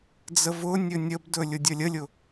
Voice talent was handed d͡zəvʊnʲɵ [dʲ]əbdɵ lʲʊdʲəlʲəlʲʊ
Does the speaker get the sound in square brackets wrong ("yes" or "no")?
yes